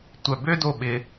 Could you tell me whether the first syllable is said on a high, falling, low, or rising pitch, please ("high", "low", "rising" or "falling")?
low